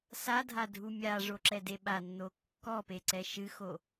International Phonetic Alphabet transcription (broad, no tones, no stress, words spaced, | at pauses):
sadʱadʱu mʲaʐoǁɛde ɓanːo kːɔpeǀɛ ʃɨxo